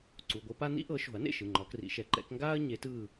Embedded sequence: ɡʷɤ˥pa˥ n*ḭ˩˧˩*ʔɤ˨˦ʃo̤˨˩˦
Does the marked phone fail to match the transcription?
yes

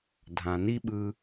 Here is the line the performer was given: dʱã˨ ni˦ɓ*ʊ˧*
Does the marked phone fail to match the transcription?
yes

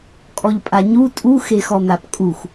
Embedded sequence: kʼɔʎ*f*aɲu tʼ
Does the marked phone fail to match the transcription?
yes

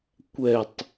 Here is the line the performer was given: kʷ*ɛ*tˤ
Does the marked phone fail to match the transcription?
no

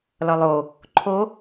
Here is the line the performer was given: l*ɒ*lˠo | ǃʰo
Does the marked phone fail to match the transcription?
no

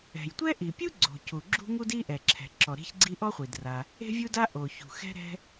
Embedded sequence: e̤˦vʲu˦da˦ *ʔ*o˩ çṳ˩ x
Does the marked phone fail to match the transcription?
no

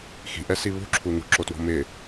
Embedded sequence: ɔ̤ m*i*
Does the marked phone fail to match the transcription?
yes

